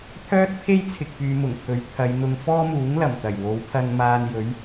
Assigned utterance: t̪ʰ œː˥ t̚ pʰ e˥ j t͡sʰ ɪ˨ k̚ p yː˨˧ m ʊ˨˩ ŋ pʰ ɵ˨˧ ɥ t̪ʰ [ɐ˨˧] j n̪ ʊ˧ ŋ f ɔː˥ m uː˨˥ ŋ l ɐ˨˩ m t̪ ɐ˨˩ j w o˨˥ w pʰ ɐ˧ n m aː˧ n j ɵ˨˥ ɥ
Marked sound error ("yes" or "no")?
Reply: no